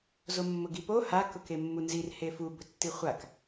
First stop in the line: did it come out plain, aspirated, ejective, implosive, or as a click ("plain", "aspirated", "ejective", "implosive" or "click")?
plain